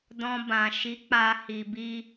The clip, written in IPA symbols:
d ɔ̃˧ b ã˨ ʃ i˨˦ k͡p a˧ h i˧ b i˦

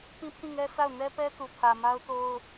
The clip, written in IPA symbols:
p ĩ˦ pʰ ĩ˦˨ ŋ ɛ˦ s a˦˨ ʊ̯ n ɛ˦ p ɛ˦ t u˨ pʰ ä˨ m a˦ ʊ̯ t o˦ ʊ̯

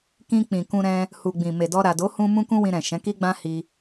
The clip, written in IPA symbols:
k ĩ˧ k͡p ĩ˨ k ũ˧ ɾ ɛ̃˧ | h u˨ ɡ͡b ĩ˨ m e˨ d ɔ˧ ɾ a˨ d o˨˦ h ũ˧ m ũ˦ k ũ˦ w ĩ˧ ɾ ɛ̃˨ ʃ ɛ̃˨˦ k i˦ ɡ͡b ã˦ h i˧

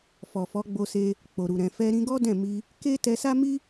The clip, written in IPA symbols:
f ɔ˨ f ɔ˨˦ ɡ͡b o˧ s e˧ | k͡p o˨ ɾ u˨ ɾ ɛ̃˨ f ɛ˧ ɾ ĩ˧ ɡ ɔ˦ d ɛ̃˦˨ m i˧ | k e˦ t ɛ˧ s a˦ m i˦

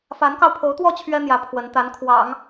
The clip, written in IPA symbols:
f a˧˥ n k ɑ˧ ʊ̯ pʰ o˧˥ ʊ̯ t̪ w ɔ˥˩ t͡ɕʰ ɥ ɛ˥ n̪ j ä˧˥ pʰ w ə˧˥ n t̪ a˧˥ n kʰ w ɑ̰˨˩˦ ŋ

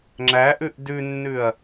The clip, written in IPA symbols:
ŋ͡ǁ æ ʔ ʉ ʔ d ʉ nː ʉ ɐ̯

